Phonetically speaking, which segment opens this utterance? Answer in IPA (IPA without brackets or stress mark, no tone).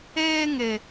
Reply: eː